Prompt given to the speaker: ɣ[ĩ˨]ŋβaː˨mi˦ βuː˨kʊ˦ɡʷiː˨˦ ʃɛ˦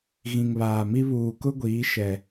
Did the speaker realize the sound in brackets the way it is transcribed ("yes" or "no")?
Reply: yes